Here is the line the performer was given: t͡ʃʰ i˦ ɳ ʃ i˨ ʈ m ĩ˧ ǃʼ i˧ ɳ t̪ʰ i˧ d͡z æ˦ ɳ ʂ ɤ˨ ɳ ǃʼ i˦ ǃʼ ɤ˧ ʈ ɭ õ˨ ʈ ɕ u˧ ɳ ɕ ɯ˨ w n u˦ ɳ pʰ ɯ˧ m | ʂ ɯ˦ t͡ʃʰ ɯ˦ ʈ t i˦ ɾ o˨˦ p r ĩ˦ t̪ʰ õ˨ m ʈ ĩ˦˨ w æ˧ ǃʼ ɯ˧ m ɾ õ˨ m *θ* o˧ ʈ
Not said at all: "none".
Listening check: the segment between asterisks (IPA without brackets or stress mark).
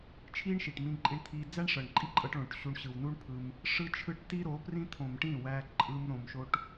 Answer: ʃ